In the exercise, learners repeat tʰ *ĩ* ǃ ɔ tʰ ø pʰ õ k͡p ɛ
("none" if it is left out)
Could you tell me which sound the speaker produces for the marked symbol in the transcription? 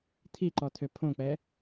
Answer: i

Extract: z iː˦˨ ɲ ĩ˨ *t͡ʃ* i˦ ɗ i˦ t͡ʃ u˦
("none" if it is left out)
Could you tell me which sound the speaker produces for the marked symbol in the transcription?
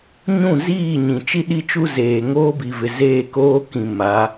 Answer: t͡ʃ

